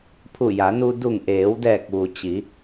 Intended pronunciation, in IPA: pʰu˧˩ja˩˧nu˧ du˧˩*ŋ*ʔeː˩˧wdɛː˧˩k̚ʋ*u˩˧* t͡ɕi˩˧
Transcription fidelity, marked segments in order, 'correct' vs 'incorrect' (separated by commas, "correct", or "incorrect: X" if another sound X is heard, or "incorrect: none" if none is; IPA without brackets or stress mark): correct, incorrect: u˩